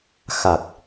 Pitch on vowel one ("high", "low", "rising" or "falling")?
low